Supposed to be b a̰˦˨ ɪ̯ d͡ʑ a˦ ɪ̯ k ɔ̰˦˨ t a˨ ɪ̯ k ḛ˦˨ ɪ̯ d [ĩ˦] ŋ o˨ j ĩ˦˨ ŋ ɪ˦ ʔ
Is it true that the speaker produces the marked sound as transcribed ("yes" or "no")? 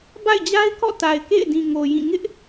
no